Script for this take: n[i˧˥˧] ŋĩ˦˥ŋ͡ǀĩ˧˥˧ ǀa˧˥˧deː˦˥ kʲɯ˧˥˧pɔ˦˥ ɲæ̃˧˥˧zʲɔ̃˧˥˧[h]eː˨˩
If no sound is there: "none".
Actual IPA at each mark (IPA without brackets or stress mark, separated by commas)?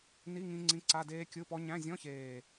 i˧˥˧, ç